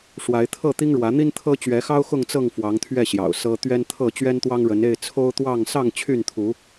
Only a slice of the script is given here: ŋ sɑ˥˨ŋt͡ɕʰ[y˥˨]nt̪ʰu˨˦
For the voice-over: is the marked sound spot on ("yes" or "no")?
yes